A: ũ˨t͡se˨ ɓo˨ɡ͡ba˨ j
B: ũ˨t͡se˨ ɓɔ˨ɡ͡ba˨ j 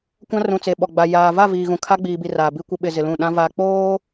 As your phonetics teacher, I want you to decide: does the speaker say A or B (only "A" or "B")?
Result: B